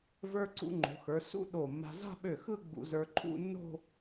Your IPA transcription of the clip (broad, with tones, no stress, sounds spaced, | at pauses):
v ə˞˧ ǀ ṵ˧ ŋ͡ǃ o̤˩˧ x ə˞˩˧ s ṵ˥ ɗ o˧˩ mː a̤˧ z a̤˥˧ ɓ ø˧˩ x ɯ˥˧ ɡ͡b ṵ˧ z ə˞˧ ǃʰ ṵ˥˧ nː o̤˥˧